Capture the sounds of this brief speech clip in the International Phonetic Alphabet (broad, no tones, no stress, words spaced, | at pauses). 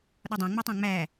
ɗɒdˤɑ̃ŋ͡mɒtˤɑ̃ ŋ͡mæ